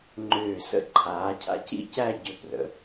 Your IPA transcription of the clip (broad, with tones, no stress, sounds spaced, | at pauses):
ŋ͡ǃ ʏː˧˩ s ə̰˧˩ ǃʰ aː˩˧ cʰ a̰˧ c ḭ˥˧ c æ˥˧ ɟ ʏ˧ p r ə̰˩˧